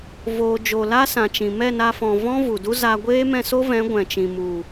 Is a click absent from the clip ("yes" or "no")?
yes